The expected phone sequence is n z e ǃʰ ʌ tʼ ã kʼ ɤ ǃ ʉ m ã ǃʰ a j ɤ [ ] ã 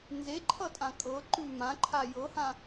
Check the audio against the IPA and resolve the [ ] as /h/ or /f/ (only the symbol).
h